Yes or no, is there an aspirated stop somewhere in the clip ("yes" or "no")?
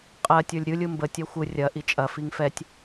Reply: no